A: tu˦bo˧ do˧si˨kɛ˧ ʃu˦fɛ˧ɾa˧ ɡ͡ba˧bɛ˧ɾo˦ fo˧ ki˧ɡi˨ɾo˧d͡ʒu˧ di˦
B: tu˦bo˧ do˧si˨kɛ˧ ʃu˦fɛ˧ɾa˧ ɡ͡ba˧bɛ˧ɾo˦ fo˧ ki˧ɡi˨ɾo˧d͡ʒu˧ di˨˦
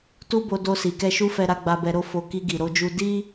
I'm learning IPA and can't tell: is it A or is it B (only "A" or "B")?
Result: A